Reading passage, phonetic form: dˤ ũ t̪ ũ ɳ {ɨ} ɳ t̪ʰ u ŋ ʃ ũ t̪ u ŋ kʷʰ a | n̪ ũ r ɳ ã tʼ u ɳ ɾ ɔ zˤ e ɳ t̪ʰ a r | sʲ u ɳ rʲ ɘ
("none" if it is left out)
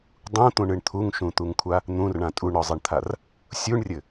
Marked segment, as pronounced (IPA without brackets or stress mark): ɨ